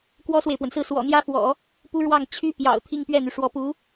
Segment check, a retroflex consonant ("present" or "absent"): present